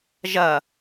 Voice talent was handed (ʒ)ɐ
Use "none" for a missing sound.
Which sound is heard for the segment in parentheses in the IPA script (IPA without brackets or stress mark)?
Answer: ʒ